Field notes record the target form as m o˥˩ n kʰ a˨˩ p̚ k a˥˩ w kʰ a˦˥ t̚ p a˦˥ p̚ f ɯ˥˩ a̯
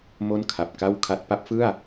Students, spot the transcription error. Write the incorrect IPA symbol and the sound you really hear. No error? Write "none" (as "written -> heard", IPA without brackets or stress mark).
none